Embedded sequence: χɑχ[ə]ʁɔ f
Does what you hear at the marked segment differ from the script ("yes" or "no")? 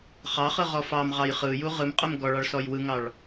yes